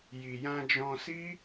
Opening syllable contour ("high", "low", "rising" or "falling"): low